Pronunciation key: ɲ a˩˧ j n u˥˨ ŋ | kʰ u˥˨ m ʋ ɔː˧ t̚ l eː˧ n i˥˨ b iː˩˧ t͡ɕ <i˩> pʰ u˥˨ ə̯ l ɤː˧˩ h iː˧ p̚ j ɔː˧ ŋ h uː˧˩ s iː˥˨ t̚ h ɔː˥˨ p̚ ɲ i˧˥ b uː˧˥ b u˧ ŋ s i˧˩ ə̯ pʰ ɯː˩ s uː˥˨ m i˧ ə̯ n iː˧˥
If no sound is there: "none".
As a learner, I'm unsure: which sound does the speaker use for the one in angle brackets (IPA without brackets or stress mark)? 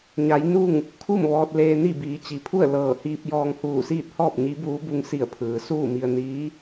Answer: i˩